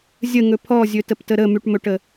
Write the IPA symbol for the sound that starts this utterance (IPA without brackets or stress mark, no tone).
zʲ